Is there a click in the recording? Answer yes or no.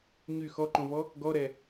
yes